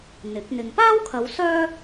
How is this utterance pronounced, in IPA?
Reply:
n̪ ɪ˨˥ k̚ n̪ ɪ˧ ŋ p aː˥ w kʰ ɐ˨˧ w s œː˥

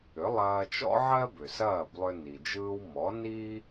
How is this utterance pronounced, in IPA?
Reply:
ʏ˩˥ lˠ ɐː˧ t͡ʃ ɔ̰˥ ʕ ɜ˥ b ʏ˩ s ɐː˥˩ b lˠ ʏ˧ n i˩ d͡ʒ ɯː˧ w m ɔ˩˥ n i˥

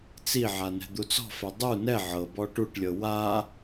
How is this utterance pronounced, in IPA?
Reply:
t͡s i ʕ a n ɛ̤ d̪ u t͡s ɔ̤ f ɛ dˤ u n ɛ ʕ ɤ b ɔ ʈ u ʈ lʲ ɤ w a

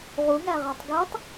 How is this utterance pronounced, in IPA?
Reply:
ʁ u ŋ æ ʁ a tˤ ɡ e tˤ

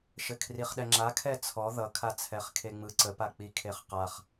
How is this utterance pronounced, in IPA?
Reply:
ʃ ɘ kʰ r i χ ɗ ɛ ŋ͡ǁ a kʰ ɛ t͡sʰ ɔ ð ʌ kʰ a t͡sʰ ɛ χ kʰ e ŋ͡m ɯ ǀ ə p a k͡p i kʰ e χ q a χ

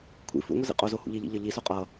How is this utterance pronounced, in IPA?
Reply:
kʷʰ ḭ f ṵ ŋʷ i z ḭ qʼ o z o h ṵ ʎ i ʎ ḭ ʎ ʌ ʎ i s o qʼ ʌ

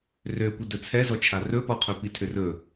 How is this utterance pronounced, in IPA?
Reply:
r ø kʷ ə d ɵ t͡sʰ ɛ z ɔ t͡ʃʰ a r ɵ p ɔ qʰ ɵ p i tʰ ʏ r ɵ

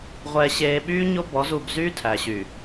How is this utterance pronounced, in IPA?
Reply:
ʁʷ ɛː˨ ɕ eː˨ ɓ yː˦ ɲ o˦ b ɔ˨˦ z u˨ b z yː˦ tʰ æ˨ ɕ y˨

